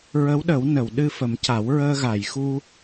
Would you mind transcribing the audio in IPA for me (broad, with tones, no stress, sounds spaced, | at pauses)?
ɹ ə˧˥ w ɗ ə˨˩˦ w n ə˨˩˨ w ɗ ɨ˧ f ə˨˩˦ m c a˨˩˦ w ɹ əː˧ ɣ a˨˩˨ j x u˧